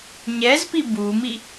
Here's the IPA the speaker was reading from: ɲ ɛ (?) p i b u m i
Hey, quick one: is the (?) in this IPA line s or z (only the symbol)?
z